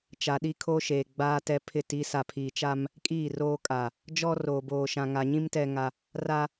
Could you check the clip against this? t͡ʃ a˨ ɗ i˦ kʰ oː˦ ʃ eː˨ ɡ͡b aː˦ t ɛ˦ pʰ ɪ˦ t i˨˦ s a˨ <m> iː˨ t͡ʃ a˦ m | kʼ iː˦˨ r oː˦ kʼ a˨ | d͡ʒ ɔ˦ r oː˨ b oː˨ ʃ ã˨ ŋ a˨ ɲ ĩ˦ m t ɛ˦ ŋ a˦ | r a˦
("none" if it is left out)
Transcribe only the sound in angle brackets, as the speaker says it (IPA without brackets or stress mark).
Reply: pʰ